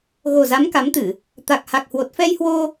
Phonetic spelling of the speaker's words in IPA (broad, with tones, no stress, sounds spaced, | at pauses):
ɣ o˨˩ z a˨˦ m k a˨˦ m t̪ ɨ˧˩˨ | t̪ a˨˩ k̚ h a˨˩ k̚ h w o˨˩ t̚ f ɛ˧ j h w o˧